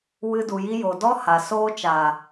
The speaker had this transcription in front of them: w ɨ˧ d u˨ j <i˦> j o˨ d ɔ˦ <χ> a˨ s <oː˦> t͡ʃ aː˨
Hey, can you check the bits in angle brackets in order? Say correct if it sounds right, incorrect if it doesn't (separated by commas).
correct, incorrect, correct